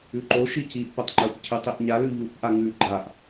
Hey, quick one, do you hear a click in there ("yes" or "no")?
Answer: yes